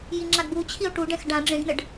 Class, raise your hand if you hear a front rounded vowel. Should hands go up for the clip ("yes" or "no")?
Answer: no